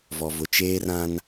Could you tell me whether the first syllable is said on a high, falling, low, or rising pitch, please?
low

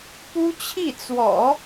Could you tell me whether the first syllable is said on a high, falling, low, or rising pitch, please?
high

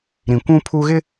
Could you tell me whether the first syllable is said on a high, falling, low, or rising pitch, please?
low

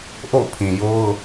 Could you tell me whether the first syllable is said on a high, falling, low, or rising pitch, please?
falling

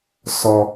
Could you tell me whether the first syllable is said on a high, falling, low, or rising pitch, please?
high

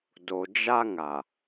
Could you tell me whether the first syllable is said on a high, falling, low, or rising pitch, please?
low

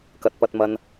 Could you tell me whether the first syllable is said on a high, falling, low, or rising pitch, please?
low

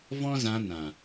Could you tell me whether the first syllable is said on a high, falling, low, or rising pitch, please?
high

